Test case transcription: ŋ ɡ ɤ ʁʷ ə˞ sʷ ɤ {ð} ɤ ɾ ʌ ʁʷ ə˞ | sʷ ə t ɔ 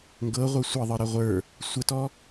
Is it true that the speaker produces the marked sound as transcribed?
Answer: no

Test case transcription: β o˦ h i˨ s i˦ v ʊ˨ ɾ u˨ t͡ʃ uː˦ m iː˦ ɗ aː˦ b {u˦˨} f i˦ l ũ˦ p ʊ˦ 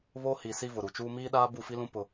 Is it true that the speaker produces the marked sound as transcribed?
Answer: yes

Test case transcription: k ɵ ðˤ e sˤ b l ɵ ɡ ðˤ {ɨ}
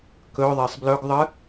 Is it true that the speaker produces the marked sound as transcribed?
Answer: yes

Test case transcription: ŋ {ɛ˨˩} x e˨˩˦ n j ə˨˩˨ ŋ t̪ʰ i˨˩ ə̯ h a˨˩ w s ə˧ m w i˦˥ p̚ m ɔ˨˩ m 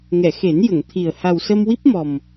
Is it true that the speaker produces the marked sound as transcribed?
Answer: no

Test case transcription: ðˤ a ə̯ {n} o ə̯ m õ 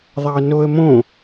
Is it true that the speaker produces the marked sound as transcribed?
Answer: yes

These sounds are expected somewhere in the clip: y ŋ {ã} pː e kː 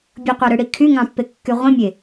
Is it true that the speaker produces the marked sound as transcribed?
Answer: no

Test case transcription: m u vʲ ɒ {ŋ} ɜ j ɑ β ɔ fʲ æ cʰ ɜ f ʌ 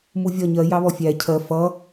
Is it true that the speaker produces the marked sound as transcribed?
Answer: no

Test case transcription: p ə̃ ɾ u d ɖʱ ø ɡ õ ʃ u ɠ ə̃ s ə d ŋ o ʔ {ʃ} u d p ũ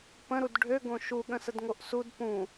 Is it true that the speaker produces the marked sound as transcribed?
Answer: no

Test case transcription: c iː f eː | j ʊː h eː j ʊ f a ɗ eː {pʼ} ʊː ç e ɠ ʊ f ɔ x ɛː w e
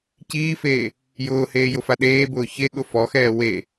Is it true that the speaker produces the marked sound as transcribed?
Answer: no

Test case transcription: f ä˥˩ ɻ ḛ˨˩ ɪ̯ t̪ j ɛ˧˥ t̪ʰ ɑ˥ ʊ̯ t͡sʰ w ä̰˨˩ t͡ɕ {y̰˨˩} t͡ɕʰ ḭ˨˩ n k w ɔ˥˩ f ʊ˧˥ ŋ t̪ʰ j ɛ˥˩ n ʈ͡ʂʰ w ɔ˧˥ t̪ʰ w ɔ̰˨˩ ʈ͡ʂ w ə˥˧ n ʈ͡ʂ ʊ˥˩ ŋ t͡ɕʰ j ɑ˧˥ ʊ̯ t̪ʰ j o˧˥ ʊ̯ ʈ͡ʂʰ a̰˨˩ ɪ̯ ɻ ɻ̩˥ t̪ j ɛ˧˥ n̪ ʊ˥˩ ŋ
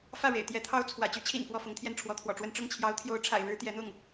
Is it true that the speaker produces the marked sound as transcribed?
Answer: no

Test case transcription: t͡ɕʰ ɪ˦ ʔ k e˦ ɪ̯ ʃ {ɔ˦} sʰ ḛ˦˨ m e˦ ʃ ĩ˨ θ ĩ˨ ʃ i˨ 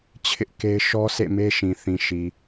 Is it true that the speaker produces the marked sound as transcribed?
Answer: yes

